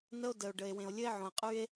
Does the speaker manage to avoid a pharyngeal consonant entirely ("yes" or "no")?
no